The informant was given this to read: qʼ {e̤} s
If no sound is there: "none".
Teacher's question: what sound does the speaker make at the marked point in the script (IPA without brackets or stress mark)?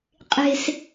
e̤